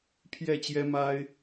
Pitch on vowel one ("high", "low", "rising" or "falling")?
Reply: falling